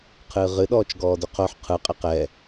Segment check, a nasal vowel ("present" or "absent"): absent